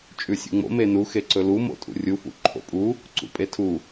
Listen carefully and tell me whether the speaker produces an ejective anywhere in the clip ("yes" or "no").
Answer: yes